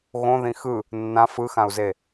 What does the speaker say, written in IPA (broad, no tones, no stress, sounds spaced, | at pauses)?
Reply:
ɣ õ ð ĩ x ɯ | nː ã f ɯ x ã u̯ z e